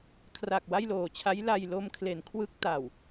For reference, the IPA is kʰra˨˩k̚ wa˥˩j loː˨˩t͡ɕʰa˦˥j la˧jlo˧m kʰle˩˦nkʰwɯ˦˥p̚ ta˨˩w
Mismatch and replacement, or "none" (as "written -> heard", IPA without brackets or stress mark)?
p̚ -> k̚